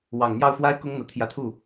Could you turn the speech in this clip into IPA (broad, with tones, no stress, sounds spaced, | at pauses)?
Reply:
w ɑ˨˩ ŋ n̪ j ɑ˥˩ ʊ̯ f w a˥ ɪ̯ k ʊ˥ ŋ n̪ ɤ˨˩ t̪ʰ j ä˧˥ t̪ʰ u˥˩